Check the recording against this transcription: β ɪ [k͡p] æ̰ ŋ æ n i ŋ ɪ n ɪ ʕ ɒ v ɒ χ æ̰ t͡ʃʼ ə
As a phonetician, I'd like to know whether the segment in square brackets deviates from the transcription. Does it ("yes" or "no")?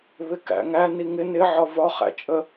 yes